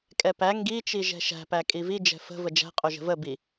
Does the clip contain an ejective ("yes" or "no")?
yes